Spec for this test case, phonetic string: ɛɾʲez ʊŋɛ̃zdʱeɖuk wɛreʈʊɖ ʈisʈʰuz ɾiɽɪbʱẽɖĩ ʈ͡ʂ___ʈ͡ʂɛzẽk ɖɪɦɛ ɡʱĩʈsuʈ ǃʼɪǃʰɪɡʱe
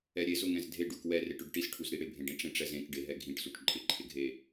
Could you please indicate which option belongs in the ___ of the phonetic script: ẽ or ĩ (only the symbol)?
ẽ